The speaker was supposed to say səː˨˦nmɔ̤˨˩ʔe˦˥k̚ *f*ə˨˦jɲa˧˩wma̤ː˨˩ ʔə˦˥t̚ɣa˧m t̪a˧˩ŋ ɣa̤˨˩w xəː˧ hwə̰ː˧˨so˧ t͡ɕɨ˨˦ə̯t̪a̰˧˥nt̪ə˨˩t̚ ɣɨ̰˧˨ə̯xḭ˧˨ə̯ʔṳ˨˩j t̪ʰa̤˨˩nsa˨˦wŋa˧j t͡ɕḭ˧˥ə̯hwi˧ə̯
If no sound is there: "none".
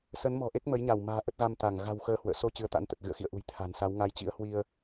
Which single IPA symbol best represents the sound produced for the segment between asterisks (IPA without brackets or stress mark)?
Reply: m